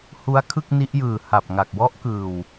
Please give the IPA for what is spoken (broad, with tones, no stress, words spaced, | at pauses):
hu˦˥a̯kʰɯ˥˩k̚ni˦˥ʔjɯː˨˩ ha˨˩p̚ŋa˨˩k̚ wɔ˦˥ʔkɯː˨˩w